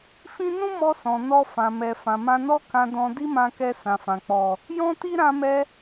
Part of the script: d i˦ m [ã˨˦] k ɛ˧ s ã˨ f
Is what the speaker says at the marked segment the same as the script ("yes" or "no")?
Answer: no